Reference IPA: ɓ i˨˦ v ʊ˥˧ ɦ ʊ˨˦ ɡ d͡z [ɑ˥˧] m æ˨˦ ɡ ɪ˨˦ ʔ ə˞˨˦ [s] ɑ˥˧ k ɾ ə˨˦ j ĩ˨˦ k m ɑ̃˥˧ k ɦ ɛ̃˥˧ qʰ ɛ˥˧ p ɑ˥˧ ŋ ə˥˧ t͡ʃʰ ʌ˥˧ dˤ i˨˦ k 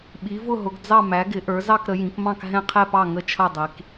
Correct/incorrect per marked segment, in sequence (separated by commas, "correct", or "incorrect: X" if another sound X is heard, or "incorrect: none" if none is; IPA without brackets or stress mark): correct, incorrect: z